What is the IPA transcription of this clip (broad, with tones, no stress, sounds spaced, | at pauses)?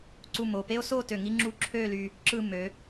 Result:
ǀ u˧˩ m o˧˩ p e˥ o̯ s o˥˧ t ø˧˩ ŋ i˥ ŋ͡ǁ u˥˧ ǁʰ ø˥˧ l y˧ | ǁ ɯ˥˧ m ø˩˧